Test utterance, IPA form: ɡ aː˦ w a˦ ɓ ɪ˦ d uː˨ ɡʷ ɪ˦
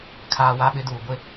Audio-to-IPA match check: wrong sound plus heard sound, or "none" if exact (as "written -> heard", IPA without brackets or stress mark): ɡ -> kʰ